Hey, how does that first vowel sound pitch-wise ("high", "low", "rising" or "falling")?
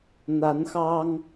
rising